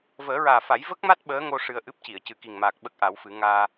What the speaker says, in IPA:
vəː˨˩˦ɹaː˨˩fa˨˩˦j və˦˥k̚ma˦˥t̚ ɓəː˧˥ŋo˧ ʂɨ˧ə̯ʔɨ˦˥p̚ci˨˩˨ə̯ cɨ˨˩ki˨˩ŋmaː˨˩k̚ ɓə˦˥k̚ʔa˨˩˦wfɨ˨˩˦ ŋaː˧

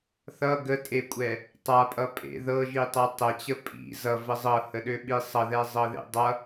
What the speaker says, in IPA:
θʌ ɡətʼekʷʼɛ | tˤapʼʌpʼḛ ðɤʒitˤɤ tˤɛt͡ɕə pʼḭ zʌvə zˤɤhəɗøɓi sˤʌðɛzˤɤðḛ dˤʌ

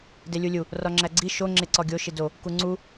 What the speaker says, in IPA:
delʲulʲu | rɒŋ͡ǁæɡ͡ǀi ʃo ŋ͡ǁeǀɒɡʲo ʃido | kuŋ͡ǀu

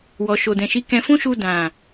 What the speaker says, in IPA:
wɔ˨ʃo˨dɛ̃˨ ʃi˨˦ kɛ̃˧fũ˦ʃu˧ dã˨

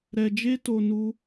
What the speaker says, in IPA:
ɾɛ˧d͡ʒe˦to˧ nu˦

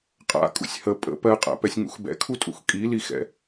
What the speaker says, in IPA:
qʼa̰ kʼṵsʲhə pʼə̰ pɜqʼa̰pɛsʲ ŋṵxbɛ̰kʰutʼṵx kʼilixɛ̰

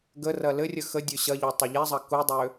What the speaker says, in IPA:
ɡərɐ lɘrʲə xədʲø ɕɐʎo tˤɐʎezˤɐ kudˤø

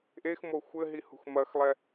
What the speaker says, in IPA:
ʔexmo xʷɘɦihṳx mɐxlˠɛ

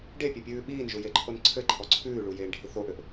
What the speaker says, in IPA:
ɖepʲepʲʉː ɓiːnʒujeǃʰon ǀʰɘǃʰɔ ǀʰʉːɭujeːɳɖʱi θoʔɘʔ

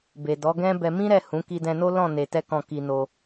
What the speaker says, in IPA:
be˨dɔ˨˦ɡɛ̃˦ bɛ˧mĩ˦ɾɛ˦˨ hũ˨˦ ki˧dɛ̃˧no˦ lɔ̃˦˨ ne˧tɛ˦kɔ̃˦˨ ki˧no˧

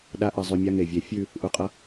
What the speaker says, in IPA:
ɗa˦ʔɘ˧ zˤʉ˧mʲa˦ŋe˨vʲe˨˦ fʲʉ˦˨ | ʔu˨qʼʌ˧

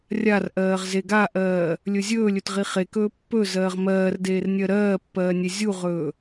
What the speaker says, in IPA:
rʲarʔɜːʁ zeɡaʔɜː | lʲɵzʲɵːlʲɵt ʁiχekɵː pːɵ zɜːʁmɜːrdeːr nʲɜɾɜːpːɜː nʲezʲuʁɵː

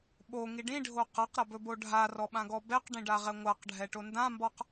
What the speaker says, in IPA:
ɓo ŋiɖĩɖʱo qaqɾabɵbo ɖʱarɔɓãɡɔ bɛqɖĩɖa ʁɛŋʷaqɖʱɛʈo ndãmbɔq

